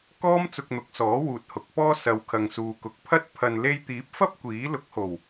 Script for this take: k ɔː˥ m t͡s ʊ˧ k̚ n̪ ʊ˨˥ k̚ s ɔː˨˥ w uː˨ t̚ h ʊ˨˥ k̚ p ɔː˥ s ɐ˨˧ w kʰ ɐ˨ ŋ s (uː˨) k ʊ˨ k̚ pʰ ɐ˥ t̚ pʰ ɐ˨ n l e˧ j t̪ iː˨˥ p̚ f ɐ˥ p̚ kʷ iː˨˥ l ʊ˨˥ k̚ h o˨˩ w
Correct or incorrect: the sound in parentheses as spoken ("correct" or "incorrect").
correct